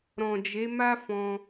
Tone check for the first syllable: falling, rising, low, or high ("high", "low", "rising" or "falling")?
low